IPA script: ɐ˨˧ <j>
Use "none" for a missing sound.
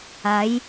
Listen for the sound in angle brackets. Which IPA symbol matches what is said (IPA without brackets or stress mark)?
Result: j